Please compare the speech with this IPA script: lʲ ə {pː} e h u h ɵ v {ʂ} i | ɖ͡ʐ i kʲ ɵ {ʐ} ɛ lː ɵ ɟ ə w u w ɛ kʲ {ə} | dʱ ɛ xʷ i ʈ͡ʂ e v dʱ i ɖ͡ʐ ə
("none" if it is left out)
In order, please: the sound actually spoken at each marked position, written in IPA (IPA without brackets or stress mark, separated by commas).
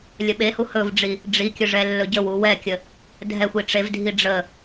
ɓ, ɖ͡ʐ, ʐ, ə